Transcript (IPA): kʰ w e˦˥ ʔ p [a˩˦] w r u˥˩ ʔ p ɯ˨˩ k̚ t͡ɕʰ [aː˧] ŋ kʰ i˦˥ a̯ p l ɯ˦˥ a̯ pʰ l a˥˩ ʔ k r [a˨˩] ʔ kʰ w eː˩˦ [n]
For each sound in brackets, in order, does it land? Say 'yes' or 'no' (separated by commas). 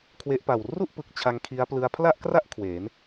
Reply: no, no, no, yes